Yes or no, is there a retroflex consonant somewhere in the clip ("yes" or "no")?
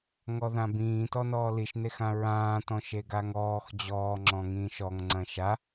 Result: no